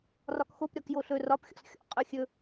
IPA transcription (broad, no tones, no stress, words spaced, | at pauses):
rɒkxop ɾʲɒkjoɬɵ rɒp xʲɔ̰sxʲɔ̰ qʼɵ xʲɵ